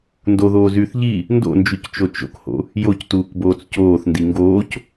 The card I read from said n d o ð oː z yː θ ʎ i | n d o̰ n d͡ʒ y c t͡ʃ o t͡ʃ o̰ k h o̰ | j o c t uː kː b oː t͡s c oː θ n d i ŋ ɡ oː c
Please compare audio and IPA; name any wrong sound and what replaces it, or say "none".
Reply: kː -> k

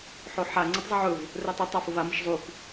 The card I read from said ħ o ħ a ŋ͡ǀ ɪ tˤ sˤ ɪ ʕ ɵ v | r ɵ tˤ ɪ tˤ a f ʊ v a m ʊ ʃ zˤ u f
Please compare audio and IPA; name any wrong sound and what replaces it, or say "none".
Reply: sˤ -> zˤ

